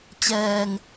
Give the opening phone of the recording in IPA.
t͡ɕ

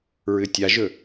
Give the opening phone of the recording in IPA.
ɹ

